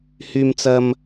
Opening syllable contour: high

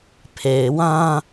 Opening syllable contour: low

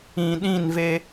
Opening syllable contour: low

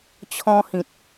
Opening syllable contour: high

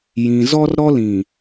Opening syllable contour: low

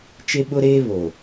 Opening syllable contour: high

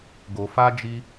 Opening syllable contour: low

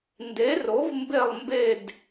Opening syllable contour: rising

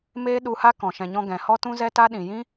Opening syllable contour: high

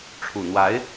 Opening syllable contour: low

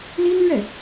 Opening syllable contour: high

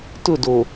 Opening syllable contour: falling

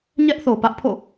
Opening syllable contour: high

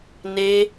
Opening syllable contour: high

